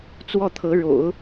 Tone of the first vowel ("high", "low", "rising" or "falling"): falling